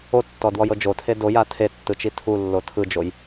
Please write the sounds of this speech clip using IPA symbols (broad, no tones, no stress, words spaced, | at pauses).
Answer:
otːɔdwɔjɤ d͡ʒotʰe doja tʰetːɯt͡ʃi tʰulːo tʰɯd͡ʒoj